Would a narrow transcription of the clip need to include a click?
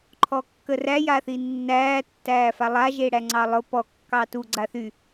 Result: yes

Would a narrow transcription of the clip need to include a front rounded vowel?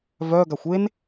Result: yes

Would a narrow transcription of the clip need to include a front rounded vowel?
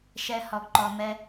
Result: no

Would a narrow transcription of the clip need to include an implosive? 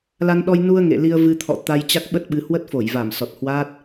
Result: yes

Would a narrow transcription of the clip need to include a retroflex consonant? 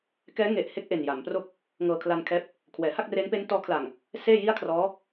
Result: no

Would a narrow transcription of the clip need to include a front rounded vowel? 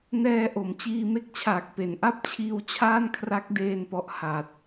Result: no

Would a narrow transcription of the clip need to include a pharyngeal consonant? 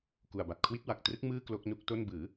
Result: no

